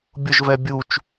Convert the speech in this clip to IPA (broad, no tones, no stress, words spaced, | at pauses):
bʲʊʒ vɛbʲut͡ʃ